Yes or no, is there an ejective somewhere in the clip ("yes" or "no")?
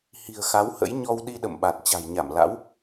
no